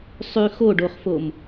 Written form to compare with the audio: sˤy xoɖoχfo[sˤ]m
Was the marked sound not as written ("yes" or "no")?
yes